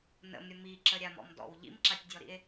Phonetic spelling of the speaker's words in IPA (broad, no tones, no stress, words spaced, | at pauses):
nə̰mɾʲə miǁəɾʲamɔ̰m dɔ̰w ʎḭmǁatʲdʲɔɾḭe̯